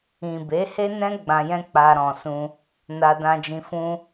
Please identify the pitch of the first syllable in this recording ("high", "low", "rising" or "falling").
low